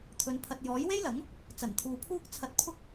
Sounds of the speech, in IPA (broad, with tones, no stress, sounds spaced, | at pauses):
t̪ʰ ɵ˨˧ n pʰ ɐ˨ t̚ j ɔː˨˥ j w e˥ j l ɐ˨˥ ŋ | t͡s ɐ˨˩ n t̪ʰ uː˨ pʰ uː˥ k̚ t͡sʰ ɐ˧ t̚ pʰ ʊ˥ k̚